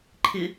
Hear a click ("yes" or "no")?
yes